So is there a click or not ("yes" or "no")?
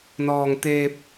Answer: no